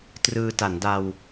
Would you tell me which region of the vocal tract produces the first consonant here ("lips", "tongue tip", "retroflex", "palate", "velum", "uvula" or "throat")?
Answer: tongue tip